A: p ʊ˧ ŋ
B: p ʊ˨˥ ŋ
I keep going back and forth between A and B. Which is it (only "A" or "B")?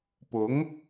B